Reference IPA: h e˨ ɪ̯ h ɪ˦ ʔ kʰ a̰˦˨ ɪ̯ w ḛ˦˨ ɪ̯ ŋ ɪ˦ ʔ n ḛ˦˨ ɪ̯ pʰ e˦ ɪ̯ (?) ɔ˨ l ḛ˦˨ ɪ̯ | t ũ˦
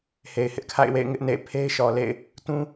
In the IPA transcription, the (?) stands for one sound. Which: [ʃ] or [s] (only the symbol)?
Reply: ʃ